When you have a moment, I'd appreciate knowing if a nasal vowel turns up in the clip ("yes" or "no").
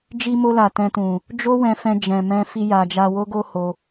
yes